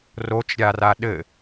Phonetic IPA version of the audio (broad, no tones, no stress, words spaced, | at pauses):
rot͡ʃɾʲara ɗɘ